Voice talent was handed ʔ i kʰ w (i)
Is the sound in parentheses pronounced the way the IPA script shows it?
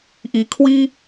yes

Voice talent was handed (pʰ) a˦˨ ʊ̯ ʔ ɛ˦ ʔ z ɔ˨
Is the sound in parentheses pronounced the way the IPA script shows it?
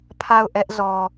yes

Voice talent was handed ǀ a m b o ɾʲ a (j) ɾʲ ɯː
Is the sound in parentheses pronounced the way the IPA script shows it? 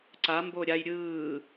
yes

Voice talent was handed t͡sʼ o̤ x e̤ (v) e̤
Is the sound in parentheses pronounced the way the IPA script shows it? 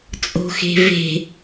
yes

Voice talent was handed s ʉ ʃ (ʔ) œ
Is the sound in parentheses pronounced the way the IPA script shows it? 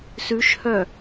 no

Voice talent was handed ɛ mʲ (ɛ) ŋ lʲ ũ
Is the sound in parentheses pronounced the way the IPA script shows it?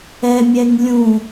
yes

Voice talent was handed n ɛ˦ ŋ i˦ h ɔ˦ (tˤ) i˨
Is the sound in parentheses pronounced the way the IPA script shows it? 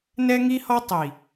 yes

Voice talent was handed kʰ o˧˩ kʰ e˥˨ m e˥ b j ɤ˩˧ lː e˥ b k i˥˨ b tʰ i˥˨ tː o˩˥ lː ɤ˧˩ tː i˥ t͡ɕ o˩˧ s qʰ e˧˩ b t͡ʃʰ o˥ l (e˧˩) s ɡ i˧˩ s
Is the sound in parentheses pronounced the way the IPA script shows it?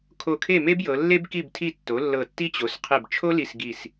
no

